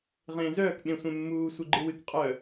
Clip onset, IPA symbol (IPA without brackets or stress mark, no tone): ʁ